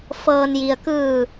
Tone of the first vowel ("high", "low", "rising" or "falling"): low